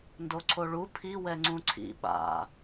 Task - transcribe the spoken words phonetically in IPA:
ndoǀʰoɭu pʰi wɛŋ͡ǀũǀʰḭ ɓa̰

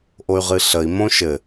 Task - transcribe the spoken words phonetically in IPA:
ʔoy̯ʁɨɬəi̯ mõʃɘ

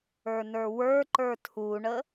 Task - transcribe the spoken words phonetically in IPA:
ə˞nə˞wə˞ǃə˞ tʰuɳə

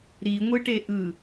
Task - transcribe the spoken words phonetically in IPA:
ɾiŋʷɯʈe ʔɯ

